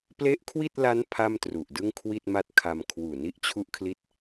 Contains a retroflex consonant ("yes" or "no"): no